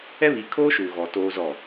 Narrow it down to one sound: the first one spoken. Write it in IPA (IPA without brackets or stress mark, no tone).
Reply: ɛ